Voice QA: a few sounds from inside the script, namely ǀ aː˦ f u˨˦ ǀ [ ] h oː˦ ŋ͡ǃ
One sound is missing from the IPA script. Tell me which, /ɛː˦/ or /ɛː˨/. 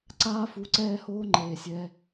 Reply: ɛː˦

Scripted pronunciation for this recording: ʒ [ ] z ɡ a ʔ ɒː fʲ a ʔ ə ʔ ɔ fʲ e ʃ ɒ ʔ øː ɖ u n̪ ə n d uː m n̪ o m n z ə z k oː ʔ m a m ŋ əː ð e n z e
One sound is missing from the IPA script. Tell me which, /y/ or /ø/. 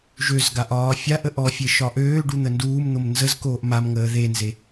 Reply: ø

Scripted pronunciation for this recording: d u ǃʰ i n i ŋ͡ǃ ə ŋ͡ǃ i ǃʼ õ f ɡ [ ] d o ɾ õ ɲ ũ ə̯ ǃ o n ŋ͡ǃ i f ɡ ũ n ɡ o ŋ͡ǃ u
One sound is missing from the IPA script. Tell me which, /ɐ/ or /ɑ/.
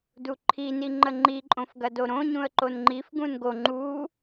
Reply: ɐ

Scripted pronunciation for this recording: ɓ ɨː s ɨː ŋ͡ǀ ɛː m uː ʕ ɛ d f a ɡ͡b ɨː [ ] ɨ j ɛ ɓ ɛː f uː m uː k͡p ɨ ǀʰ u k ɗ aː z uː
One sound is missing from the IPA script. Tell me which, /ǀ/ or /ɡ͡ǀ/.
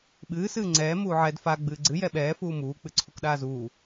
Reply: ɡ͡ǀ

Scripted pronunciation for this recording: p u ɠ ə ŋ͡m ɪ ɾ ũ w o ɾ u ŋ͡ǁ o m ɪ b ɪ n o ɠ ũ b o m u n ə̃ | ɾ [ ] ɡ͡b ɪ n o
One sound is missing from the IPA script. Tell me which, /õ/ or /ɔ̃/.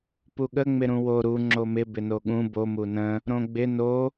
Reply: õ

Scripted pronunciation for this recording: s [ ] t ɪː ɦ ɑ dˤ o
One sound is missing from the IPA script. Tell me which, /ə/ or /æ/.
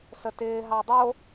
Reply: ə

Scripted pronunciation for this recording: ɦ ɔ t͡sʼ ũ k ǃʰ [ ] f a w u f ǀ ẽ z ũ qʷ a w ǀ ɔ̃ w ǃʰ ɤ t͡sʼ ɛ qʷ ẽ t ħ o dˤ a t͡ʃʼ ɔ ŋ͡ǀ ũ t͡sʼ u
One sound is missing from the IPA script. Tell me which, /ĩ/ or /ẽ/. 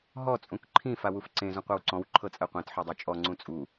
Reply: ĩ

